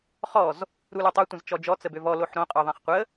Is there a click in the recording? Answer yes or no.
no